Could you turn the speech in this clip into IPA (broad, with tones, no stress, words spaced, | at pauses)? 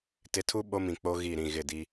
tɪ˨tʰu˦ ɓo˦mĩ˨k͡po˦ ɣi˦˨ɾĩ˦˨ɣɪ˦˨di˦